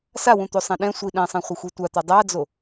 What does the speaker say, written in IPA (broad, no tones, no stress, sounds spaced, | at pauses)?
s a w ũ t̪ o sˤ ɛ̃ ɗ ɛ̃ sʷ i ɗ ɛ̃ sˤ ɛ̃ χʷ ʌ xʷ i tʷ a t̪ a dˤ a d͡z o